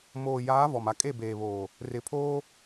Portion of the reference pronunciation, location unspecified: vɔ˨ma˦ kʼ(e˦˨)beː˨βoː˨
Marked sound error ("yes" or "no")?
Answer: no